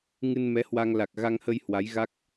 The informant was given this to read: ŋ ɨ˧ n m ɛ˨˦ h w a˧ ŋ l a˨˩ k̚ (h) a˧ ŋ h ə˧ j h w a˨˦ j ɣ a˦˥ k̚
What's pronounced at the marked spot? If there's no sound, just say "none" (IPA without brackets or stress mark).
ɣ